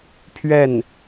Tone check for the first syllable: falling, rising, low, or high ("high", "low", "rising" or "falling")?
falling